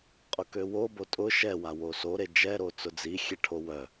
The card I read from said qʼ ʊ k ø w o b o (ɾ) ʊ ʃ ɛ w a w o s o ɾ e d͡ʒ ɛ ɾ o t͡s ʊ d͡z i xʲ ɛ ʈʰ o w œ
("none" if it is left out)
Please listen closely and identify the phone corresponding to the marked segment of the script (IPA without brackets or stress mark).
tʼ